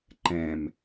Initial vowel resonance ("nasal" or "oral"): nasal